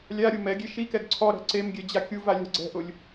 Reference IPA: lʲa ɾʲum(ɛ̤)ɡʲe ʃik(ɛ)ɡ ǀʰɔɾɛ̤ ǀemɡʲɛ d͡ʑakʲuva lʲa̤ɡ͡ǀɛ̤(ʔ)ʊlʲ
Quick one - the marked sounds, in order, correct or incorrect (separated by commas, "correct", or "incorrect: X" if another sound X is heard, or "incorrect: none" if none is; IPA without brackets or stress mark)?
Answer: incorrect: ɛ, correct, correct